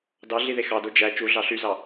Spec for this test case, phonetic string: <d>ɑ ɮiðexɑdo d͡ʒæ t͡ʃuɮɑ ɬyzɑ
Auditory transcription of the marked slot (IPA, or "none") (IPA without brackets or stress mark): d